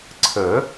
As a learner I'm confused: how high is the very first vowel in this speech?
mid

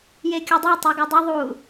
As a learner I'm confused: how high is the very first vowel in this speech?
mid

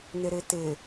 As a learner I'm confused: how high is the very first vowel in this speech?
high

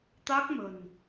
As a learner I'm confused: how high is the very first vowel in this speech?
low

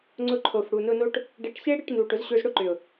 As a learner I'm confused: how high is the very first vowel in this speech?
high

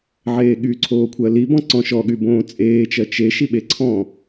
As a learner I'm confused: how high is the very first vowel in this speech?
mid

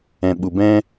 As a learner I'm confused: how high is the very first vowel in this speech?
mid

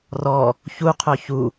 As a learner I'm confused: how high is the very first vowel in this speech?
mid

